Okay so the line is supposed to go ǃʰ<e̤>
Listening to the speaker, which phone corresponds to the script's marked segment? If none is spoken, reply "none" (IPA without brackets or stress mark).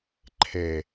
e